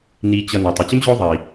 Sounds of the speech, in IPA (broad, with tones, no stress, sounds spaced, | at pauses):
n iː˨ t͡ɕ ʌ˨ n ʌ˩ tˤ ə˨ t͡ɕ ə˥ m ʑ ʊː˦ ðˤ iː˩